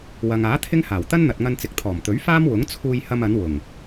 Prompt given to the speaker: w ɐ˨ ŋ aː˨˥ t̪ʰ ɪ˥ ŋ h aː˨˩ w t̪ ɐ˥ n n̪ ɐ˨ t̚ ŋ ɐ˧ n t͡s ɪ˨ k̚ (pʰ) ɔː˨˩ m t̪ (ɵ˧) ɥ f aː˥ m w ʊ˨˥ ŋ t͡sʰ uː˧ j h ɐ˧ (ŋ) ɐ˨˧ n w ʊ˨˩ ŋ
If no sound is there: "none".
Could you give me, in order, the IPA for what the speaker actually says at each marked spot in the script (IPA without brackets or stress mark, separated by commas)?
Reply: t̪ʰ, ɵ˨˥, m